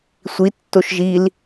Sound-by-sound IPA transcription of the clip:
sʷ i tː o ʃ ʒ i l

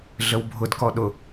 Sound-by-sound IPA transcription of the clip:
ɮ ə w bʱ ʊ d k ɔ ɗ ʊ

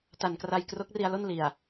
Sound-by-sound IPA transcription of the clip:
t a˨˩ n k r a˧ j k r o˦˥ k̚ r i˧ a̯ l o˥˩ n l i˨˩ a̯

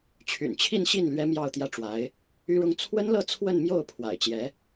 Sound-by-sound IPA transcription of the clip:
t͡ɕʰ y̰˨˩ n t͡ɕʰ i˥˧ n ɕ i˥˩ n l ɥ ɛ˥ m j ɑ˥˧ ʊ̯ t̪ j ä˥˩ ʈ͡ʂ w a˧˥ ɪ̯ | y˥ ɻ ʊ˥ ŋ t͡sʰ w ə˥ n l ɤ˥˧ t͡sʰ w ə˥˧ n m j o˥˩ ʊ̯ pʰ w a̰˨˩ ɪ̯ t͡ɕ j ɛ˧˥

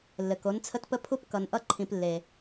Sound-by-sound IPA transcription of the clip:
lː ɘ˩ k o˩˧ n t͡sʰ ə˧ t p ə˧ pʰ u˧ p k ʌ˩ n ʔ ʌ˧ ǃʰ ĩ˩ p lː e˩

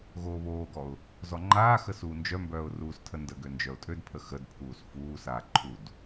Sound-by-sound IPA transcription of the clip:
ɣ oː β oː ɡ ɔ ʊ̯ | z ɔ ŋ͡ǃ aː x ə s uː n d͡ʒ œ m b œː ʊ̯ r uː s tʰ ə n d ə ɡ ø n d͡ʒ œ ʊ̯ tʼ ø d pʰ ə x ə d pʰ uː s f uː s aː ǃʰ u d

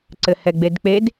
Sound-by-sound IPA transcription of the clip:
ǀ ɘ h ɛ ɡ͡b e d k͡p e d

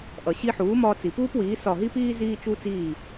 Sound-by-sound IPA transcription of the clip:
ʔ ʌ˩ ɕ i˧ ħ uː˩˥ m ɒː˧ t͡s i˩ p uː˥ p w iː˩˥ s ɒ˧˩ ɦ i˥ p iː˥ z iː˧ t͡ʃ u˧ t͡s iː˧˩

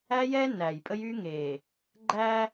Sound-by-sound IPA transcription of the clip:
æ˦ j ɛ˦ n æ˨ j pʼ ə˦ j y˦ ŋ e˨ | ɡ͡ǃ æ˦

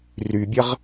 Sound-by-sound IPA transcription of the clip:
r y bʲ ə ʁ

